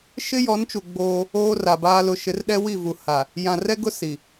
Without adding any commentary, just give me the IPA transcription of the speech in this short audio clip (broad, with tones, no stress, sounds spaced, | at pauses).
ʃ ɪ˦ j ɔ˨˦ n t͡ʃ u˨ ɡ͡b oː˦ | oː˦ r a˨ b aː˦ l ʊ˨ ʃ ɪ˨˦ r ɗ ɛ˦ w i˦˨ v u˨ h a˨ | j ã˨ r ɛ˦ ɡ ʊ˦ s i˨